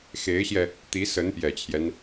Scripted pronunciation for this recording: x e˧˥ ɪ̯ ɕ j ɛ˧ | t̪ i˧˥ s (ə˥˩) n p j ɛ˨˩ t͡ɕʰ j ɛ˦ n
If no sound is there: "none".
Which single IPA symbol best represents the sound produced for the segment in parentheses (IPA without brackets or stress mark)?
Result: ə˧˥